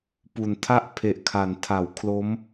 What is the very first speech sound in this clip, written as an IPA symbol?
p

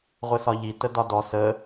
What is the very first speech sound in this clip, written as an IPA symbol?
ʁʷ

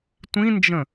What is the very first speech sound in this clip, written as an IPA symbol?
tʷ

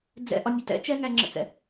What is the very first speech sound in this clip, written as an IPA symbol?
d͡z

